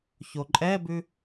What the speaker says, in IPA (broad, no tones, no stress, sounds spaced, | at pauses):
ç o ǃʼ ɛ b ʉ